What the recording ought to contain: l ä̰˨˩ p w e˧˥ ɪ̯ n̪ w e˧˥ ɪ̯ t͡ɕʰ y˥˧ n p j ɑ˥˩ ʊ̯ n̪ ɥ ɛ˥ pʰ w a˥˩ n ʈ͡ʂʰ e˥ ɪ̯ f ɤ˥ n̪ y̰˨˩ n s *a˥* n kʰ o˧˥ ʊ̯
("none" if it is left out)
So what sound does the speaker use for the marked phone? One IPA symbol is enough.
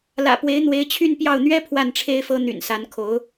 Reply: a˧˥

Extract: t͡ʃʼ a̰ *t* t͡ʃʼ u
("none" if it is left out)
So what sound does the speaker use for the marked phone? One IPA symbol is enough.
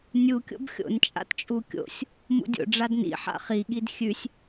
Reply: t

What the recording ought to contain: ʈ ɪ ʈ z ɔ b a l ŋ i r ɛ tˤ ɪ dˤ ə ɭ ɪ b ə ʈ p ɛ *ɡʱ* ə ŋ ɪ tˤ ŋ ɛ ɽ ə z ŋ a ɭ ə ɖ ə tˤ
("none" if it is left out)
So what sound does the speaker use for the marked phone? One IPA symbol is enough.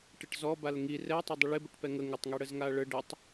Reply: ŋ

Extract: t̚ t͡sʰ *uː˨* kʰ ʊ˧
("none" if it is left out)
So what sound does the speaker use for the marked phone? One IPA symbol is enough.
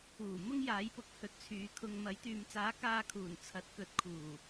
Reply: yː˨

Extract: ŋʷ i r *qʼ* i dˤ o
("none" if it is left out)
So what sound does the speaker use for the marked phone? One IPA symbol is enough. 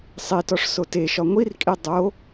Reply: kʼ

